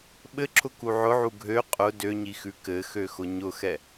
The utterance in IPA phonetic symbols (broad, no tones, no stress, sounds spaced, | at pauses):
ɓ ɘ ǁʰ ʊ k u ʕ ʊ ʕ u ɡʱ ø qʼ ʊ d ø ɲ i x ʉ k ɘ x ø x ʊ ɲ ʊ x ɛ